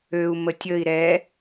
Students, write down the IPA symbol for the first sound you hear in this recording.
ø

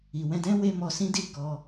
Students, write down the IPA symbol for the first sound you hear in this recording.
i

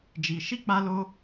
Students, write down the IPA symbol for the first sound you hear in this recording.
d͡ʒ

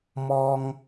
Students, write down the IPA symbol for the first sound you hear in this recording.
m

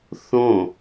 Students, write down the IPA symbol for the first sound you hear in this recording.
θ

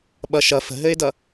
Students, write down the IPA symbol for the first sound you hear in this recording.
ɓ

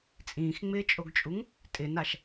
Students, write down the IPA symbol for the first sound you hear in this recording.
t͡sʼ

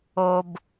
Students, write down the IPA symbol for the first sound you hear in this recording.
o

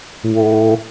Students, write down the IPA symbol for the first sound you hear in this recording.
w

